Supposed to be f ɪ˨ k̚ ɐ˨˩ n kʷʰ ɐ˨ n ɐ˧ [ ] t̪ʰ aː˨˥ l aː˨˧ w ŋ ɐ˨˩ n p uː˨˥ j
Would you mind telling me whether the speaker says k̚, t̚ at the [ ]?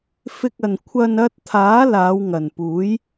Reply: t̚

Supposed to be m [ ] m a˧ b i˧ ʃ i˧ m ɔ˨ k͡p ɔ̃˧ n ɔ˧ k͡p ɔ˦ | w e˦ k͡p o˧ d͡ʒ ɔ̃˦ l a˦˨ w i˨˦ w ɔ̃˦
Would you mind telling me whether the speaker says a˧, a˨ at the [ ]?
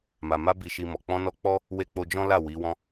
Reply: a˨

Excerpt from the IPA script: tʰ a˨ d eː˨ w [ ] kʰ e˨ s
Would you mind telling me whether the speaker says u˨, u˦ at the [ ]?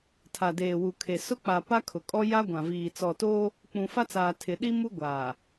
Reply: u˨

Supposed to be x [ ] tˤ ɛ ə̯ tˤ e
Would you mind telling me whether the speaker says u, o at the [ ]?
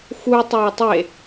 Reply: u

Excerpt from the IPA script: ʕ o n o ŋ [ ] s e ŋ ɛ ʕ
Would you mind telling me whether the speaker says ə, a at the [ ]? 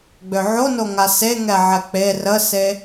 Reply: a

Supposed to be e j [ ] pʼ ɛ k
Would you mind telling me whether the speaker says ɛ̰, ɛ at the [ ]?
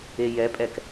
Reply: ɛ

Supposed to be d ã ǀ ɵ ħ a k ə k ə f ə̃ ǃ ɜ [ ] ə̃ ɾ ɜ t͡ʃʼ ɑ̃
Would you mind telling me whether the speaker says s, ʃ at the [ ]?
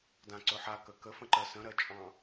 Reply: s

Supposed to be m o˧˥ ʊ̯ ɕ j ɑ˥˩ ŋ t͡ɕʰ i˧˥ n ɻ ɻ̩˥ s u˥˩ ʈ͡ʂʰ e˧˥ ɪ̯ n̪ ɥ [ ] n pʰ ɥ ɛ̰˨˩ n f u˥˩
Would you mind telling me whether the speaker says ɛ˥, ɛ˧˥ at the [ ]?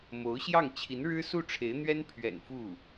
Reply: ɛ˥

